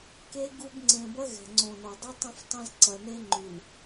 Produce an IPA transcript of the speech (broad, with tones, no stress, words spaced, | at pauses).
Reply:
ke˦ɡu˦b ŋ͡ǀẽ˨bɐ˦ ɣɛ̤˨ŋ͡ǀõ˨no˨ dˤy˦tˤɐ̃˦ftˤɐ̃˦z ǀɐ˨ne˦ŋ͡ǃy˨w